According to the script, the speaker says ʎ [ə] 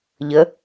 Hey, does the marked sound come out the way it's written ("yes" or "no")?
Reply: yes